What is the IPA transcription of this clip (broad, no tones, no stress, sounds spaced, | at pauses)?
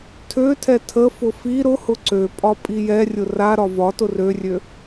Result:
tʰ ø tʰ ɛ tʰ ə f ʊ f i ɾ ʊ h ʊ ǀ ø pʼ ɒ pʼ i j ɛ rʲ ʊ r a ɾ ɒ v ɒ t ʊ r ø rʲ ø